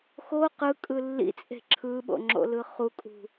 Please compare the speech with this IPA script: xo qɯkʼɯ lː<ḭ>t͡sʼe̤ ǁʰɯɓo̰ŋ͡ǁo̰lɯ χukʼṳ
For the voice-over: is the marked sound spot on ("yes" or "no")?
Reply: yes